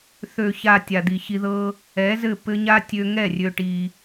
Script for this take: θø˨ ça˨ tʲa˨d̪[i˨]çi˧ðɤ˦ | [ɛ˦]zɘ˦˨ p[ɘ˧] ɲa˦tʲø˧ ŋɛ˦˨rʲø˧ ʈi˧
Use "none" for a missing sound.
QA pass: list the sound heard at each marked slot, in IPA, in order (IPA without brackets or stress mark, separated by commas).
i˨, ɛ˨˦, ɘ˧